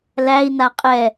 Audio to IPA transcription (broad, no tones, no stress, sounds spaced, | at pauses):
l æ i̯ n a qʼ ɛ